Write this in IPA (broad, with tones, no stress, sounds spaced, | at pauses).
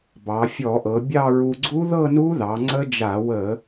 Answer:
b ɑ˩˧ fʲ ɔ˧˩˧ ʔ ɤ˩˧ bʲ ɑ˥˧ ɹ u˧ ɡ͡ǀ u˦˥ ð ɤ˥˧ n u˦˥ ð ɑ˩˧ ŋ͡ǀ ə˦˥ d͡ʒ a˧˩˧ w ə˧˩˧